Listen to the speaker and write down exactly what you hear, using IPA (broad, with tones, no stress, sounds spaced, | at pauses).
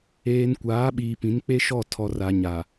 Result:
eː˨ n kʷ aː˨˦ ɓ iː˨ p ĩ˨˦ n k͡p e˦ ʃ ɔ˦˨ tʰ ɔ˨ r a˨ ɲ a˨